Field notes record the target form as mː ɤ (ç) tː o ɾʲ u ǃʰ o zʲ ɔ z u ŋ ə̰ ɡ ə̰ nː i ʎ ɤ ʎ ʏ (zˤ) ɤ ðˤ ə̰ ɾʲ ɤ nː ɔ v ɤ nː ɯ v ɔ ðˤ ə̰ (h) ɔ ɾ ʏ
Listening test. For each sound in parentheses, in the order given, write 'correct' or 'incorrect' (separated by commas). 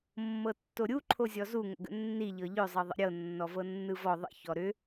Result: incorrect, correct, incorrect